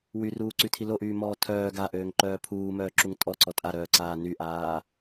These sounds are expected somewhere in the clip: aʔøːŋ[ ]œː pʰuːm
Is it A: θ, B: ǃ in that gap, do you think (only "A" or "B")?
B